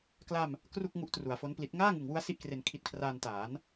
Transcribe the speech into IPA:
k l a˧ m | k r u˥˩ k̚ ŋ u˦˥ ʔ t r u˩˦ a̯ f o˦˥ n p l i˦˥ t̚ ŋ aː˥˩ ŋ ɯ˨˩ ŋ w u˦˥ a̯ s i˥˩ ʔ k r e˧ n kʰ i˦˥ t̚ kʰ r aː˧ n t aː˩˦ n

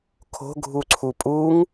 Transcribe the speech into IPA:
kʰ o̤ ɡʱ u ǀʰ u pʼ u ŋ

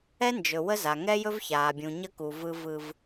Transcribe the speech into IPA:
ɛ˦ n d͡ʒ ɵ˨ w ə˦ z a˨ ŋ ɛ˦ j ɵ˦ v ç aː˨ bʲ ũ˨ ɲ ə˦ k u˨ v ɯ˦ v ɯ˦ v

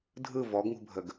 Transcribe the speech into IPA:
dʱ ɯ v ɔ ɡ ŋ ṳ bʱ ə ɡ

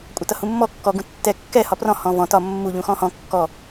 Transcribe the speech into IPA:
kʷʼ ʌ t ʌ h ũ mː ɔ kː ɔ ɡ ũ tː ɛ kː ɛ h ɒ p r ɔ̃ h ɔ̃ v ɔ̃ t ɒ mː u ʎ ũ x ɔ̃ h ɔ̃ kː ɔ

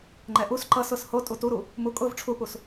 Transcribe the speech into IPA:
ŋ͡ǃ ɛ ʔ u s ǃ ʌ s ʊ s h o tʼ u t u ɾ u | m u kʼ ʊ v ʈ͡ʂʰ u p u s

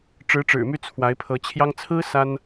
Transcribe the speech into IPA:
ʈ͡ʂ ɻ̩˧˥ ʈ͡ʂ ɻ̩˨˩ m y˥˩ t͡sʰ w a˧˥ ɪ̯ pʰ ɤ˧˥ t͡ɕʰ j ɑ˥ ŋ t͡sʰ ɹ̩˥ s a˥ n

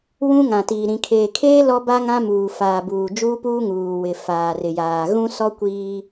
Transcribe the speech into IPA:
w ũ˦ ŋ ã˨ t iː˨ ɾ ĩ˨ kʰ eː˨ kʰ eː˦ l ɔ˦ b a˦ ŋ ã˦ m uː˨ f aː˨ b uː˨ d͡ʒ uː˦ p uː˦ ŋ uː˨ w ɪ˨ f aː˨ r ɪ˨ j aː˨ ɣ ũ˦ s ɔ˦ kʷ iː˦

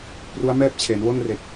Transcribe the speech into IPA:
p r u˦˥ a̯ m ɛː˥˩ p̚ t͡ɕʰ e˩˦ n w o˥˩ n r e˨˩ k̚

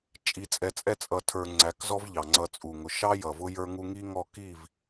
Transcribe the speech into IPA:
t͡ʃʼ i˧ t͡sʼ ɛ˧ t͡sʼ ɛ˦ t͡sʼ ʌ˨ tʰ ə˞˨ ŋ͡ǀ æ˨˦ k z ɔ˦ v ʎ ɑ˨ ŋ͡ǀ ʌ˧ t͡sʼ u˨ ŋ ʊ˨ ʃ ɑ˦ j ʌ˨ v ʊ˦ j ə˞˦ ŋ u˦ ŋ i˦ ŋ ɔ˦˨ k i˦˨ v

